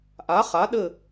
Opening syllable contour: rising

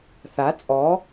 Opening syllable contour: rising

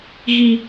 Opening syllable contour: high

